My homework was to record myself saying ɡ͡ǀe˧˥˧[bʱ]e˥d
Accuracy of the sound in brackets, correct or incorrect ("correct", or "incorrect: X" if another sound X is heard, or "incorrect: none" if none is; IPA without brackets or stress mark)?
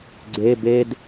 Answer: incorrect: b